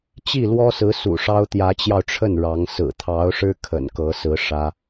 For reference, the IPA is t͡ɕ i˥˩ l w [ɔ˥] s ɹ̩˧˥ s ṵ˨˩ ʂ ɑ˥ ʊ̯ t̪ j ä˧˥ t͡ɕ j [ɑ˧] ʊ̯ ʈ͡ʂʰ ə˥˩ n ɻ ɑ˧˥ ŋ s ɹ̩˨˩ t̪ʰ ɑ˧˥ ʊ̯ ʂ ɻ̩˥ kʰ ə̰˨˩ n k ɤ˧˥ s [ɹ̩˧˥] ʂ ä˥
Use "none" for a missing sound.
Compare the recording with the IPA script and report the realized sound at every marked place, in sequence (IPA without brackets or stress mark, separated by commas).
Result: ɔ˥, ɑ˧, ɹ̩˧˥